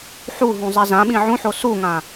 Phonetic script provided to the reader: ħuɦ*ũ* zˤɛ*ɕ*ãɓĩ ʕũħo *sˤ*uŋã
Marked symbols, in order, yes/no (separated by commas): yes, no, no